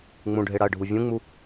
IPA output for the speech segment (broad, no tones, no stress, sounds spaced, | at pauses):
ŋ͡m ũ ɖʱ e ɽ a ə̯ ɖʱ u vʲ ũ ŋ͡m u